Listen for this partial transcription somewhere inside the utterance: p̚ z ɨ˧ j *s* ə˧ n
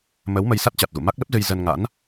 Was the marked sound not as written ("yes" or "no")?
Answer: yes